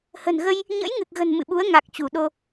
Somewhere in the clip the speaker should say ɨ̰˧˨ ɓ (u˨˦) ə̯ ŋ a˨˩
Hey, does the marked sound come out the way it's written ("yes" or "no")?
yes